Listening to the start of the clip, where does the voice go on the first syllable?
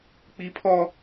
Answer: high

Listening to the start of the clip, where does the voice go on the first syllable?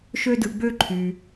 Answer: high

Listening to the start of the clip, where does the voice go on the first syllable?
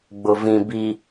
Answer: low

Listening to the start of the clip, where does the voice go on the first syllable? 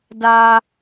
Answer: high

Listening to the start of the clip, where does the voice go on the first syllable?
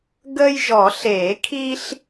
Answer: high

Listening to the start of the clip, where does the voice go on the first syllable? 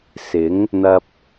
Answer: rising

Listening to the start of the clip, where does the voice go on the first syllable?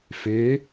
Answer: rising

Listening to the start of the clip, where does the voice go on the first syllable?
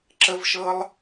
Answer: high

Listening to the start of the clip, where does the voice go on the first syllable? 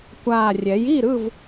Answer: low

